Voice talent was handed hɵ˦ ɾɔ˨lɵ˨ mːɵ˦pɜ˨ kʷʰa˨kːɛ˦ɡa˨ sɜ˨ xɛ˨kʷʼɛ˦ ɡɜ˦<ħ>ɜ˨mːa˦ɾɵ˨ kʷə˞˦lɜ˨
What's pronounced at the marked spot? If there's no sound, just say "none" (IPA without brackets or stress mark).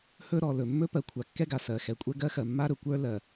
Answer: x